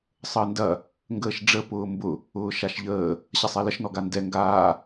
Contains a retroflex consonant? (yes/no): yes